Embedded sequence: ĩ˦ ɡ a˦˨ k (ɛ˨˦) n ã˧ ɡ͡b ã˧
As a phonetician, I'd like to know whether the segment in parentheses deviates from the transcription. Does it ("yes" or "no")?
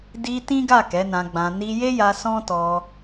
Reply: no